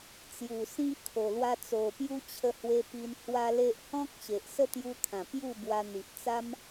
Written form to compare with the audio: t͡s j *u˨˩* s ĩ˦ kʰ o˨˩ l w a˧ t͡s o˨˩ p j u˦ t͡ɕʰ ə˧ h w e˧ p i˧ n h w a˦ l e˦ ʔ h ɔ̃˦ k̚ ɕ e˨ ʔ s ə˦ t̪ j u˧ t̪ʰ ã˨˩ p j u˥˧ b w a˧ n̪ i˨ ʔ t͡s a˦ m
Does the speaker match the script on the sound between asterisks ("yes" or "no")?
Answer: yes